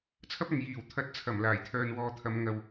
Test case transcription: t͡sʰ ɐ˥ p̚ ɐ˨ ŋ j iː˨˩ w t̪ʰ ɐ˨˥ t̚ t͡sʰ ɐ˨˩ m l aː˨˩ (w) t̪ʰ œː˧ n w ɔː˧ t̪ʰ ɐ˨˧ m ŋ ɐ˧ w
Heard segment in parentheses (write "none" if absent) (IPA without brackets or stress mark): j